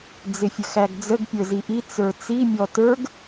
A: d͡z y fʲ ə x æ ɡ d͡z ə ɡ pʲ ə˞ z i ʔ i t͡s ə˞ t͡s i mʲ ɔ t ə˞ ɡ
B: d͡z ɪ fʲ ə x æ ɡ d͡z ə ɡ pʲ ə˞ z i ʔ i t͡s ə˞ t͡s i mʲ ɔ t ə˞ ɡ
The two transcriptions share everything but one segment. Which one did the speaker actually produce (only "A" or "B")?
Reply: B